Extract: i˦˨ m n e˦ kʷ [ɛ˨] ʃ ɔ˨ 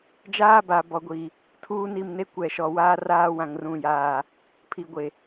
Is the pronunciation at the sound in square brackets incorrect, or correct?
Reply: correct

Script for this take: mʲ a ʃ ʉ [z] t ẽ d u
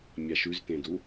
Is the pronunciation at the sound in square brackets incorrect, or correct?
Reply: correct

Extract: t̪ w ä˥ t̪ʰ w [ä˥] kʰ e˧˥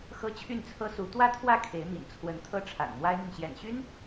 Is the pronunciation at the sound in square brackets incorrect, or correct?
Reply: incorrect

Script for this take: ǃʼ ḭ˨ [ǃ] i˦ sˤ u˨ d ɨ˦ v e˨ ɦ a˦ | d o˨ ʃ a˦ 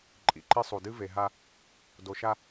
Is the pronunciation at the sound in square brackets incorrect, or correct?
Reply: correct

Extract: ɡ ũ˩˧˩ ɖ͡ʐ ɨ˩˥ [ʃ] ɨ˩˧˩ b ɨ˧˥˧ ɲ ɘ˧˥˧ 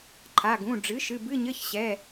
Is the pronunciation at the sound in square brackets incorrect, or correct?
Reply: correct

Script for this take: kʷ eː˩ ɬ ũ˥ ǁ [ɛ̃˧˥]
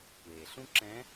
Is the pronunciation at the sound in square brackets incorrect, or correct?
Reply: correct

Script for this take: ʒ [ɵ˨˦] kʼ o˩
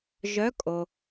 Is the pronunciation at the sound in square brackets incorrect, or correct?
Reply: incorrect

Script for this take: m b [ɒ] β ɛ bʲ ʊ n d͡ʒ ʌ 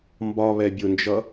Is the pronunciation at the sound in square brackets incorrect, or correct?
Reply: correct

